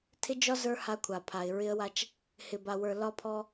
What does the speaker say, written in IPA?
tʰ ɪ˦ d͡ʒ ɒ˦ z ə˞˦ h a˦ kʷʰ a˨ pʰ a˨ ɪ̯ ɹ ɪ˦ ə̯ w a˦ t͡ʃ | h ɪ˨ b a˨ w ə˞˨ l ɒ˦ pʰ ɔ˦

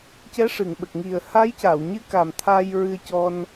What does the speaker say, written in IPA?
c ɛ˧˥ ʂ ɨ˨˩˨ ŋ ɓ ə˨˩ k̚ ŋ i˨˩ ə̯ h a˧˥ j c a˨˩˨ w ɲ ɨ˧˥ k a˨˩ m t̪ʰ a˧ j ɹ ɨ˧ ə̯ c ɔ˧ n

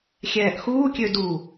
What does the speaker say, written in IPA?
xʲ ɛː ʔ x uː kʲ ø d u

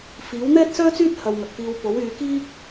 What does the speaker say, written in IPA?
f iː˨˥ w n̪ ɛː˥ t̚ s œː˥ t͡s yː˥ t̚ h ɐ˧ w ŋ ɐ˨ k̚ f iː˧ w p o˨˥ w yː˨˧ k iː˥ k̚

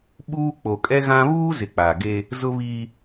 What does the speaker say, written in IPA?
ɓ uː˦ k͡p o˨ kʼ ɛ˦ ɣ ã˦ β uː˦ z ɪ˨ k͡p a˨ ɡ e˦ | z ʊ˦ β iː˦

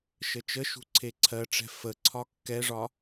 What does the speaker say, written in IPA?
ʃ ə t͡ʃ ə ʃ ṳ ǀʰ e ǀʰ ɜ ʈ͡ʂ ɛ̤ f ə ǀʰ ɒ kː ɛ ʐ ɒ

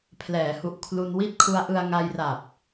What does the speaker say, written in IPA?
pʰ l ɛː˩˦ h u˨˩ ʔ kʰ l u˧ n w i˥˩ t̚ kʰ u˦˥ a̯ ʔ ɯ˧ a̯ ŋ a˧ j r a˨˩ p̚

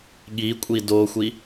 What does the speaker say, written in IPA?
ɠ i kʷʼ i d o xʷ i

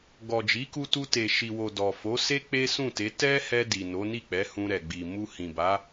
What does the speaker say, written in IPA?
ɡ ɔ˨ d͡ʒ i˨˦ k u˧ t u˧ t e˨ ʃ i˨ w o˨ d ɔ˨ f o˨˦ s e˦ k͡p e˦ s ũ˦˨ t e˨˦ t ɛ˦ h ɛ˧ d i˨ n o˨˦ n i˦˨ k͡p ɛ˨˦ h ũ˧ ɾ ɛ˨ ɡ͡b i˨ m u˧ h ĩ˨ b a˨˦

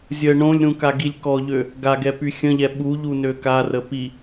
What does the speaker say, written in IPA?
zʲ ə ɳ õ lʲ ɾ ũ k a ɡ i lʲ k ɔ ʎ ø | ɡ a ɡ ɛ p y xʲ ə̃ ʎ ɛ ɓ u ʎ u n ø k a r ə p i

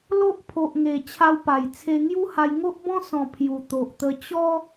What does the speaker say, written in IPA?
l o˦ ʔ pʰ o˨ ʔ ŋ e˨˩ t͡ɕʰ a˧ w p a˨˩ j t͡sʰ e˧ ŋ j u˦ h a˧ j ŋ o˦ ʔ b ɔ̃˦ s ɔ̃˨˩ pʰ j u˨˩ t̪ o˨ ʔ t̪ ə˧ t͡ɕ ɔ˦

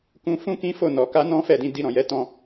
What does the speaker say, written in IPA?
k ũ˧ f ũ˦ k ĩ˦ f o˦˨ n ɔ˨ k a˧ n ɔ̃˦ f ɛ˦˨ d ĩ˧ d i˧ ɾ ɔ̃˨ j ɛ˨˦ t ɔ̃˧

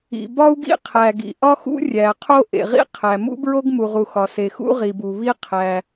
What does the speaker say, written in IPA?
ḭ˩ b ɒ˥ u̯ ɡ ḭ˥ qʰ æ˩ ɡ ḭ˩ ʔ ɒ˥ x ṵ˥ rʲ æ˩ qʰ o˥ ʔ ḛ˩ ʁ ḭ˥ qʰ æ˩ m ṵ˥ b ɹ o˥ ɡ m u˩ ʁ u˩ x ɒ˩ s e˩ x ṵ˥ ʁ i˩ b u˩ β i˥ qʰ æ˩

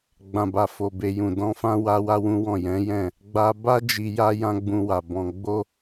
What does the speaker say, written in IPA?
ɡ͡b ã˨ b a˨ f o˨ b e˨ j ũ˨ d ɔ̃˧ f ã˦ w a˦ w a˦ w ũ˦ w ɔ̃˦˨ j ɛ̃˨˦ j ɛ̃˦˨ | ɡ͡b a˧ b a˦ d͡ʒ i˧ j a˦ j ã˦ ɡ͡b ũ˧ w a˨ b ɔ̃˧ ɡ͡b o˦

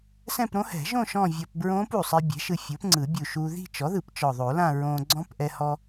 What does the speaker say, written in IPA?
s ɛ̃˥˧ p ɾ õ˦˥ h ɛ̤˨˩˦ ʒ õ˥˧ ʃ ɔ̃˥˧ vʲ ɔ˧ p b ɹ õː˦˥ p u˨˩ sˤ i˧ bʲ ɛ̤˩˥ ʃ ɯ˧ fʲ o˩˥ p ŋ͡ǀ ɯ˨˩˦ bʲ u˨˩ ʃ u˧ ð i̤˥˧ t͡ʃ ɔ˩˥ ð ɯ˨˩˦ p t͡ʃ ɔ˨˩ ðˤ o˨˩˦ l ã˥˧ ɹ õː˧ ɡ͡ǀ ɔ̃˦˥ p ʔ ɛ˧ h ɔ˧

